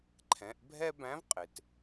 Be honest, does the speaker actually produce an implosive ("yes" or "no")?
no